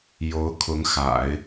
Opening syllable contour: rising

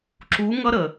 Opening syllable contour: rising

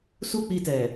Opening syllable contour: high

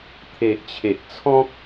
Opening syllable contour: low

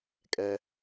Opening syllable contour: low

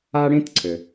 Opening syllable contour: high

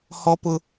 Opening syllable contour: high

